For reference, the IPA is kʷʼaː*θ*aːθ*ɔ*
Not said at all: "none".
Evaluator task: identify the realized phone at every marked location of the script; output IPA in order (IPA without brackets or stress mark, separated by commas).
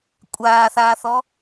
θ, ɔ